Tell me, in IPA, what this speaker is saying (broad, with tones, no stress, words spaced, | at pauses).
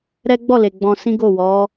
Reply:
ɾɛ˦ ɡ͡bɔ˦˨le˨ ɡ͡bɔ̃˧sĩ˦ɡo˦˨ wɔ˨˦